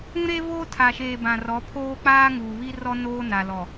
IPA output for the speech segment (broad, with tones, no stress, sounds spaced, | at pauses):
ũ˦ ɾ e˦ v o˦ tʰ a˨ ʃ eː˨ b ã˨ r ɔ˨˦ pʰ oː˦ k͡p aː˦ ŋ uː˨ β i˦ r ɔ˦ n oː˦ n a˨ l ɔ˨